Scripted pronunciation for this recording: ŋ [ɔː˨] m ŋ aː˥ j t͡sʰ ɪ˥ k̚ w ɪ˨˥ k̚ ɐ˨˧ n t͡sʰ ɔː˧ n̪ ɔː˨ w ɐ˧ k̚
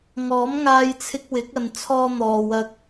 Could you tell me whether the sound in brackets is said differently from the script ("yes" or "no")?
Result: yes